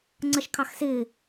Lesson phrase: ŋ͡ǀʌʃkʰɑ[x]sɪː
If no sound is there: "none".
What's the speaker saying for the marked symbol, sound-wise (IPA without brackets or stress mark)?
x